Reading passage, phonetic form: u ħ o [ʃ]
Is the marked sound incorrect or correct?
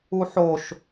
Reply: correct